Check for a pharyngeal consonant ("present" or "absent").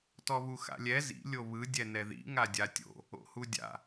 absent